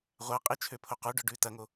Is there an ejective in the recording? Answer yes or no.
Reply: yes